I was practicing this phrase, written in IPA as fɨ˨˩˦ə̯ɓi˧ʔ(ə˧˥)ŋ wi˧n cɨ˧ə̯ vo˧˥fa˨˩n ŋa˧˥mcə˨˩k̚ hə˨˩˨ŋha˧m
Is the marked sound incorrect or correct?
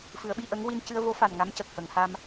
correct